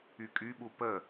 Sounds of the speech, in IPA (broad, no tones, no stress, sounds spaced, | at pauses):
y kʼ y ɓ u p ə